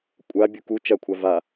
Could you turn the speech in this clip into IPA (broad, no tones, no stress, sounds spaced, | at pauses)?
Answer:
kʷʼ a bʲ u k u t͡ʃ ɐ kʷʰ a v a